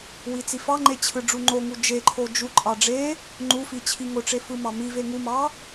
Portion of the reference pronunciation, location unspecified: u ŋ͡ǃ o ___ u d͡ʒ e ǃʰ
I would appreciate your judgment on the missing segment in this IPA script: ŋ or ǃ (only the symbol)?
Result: ŋ